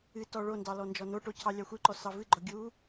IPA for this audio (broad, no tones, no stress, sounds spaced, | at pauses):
ɨ t ɔ ɭ o n d ɑ l ɔ n d͡ʒ ɔ n o ʈ o cʰ ɑ lʲ ɑ xʷ ɨ ǃ ɔ s ɑ v ɨ ɡ͡ǃ ɔ ɡʲ u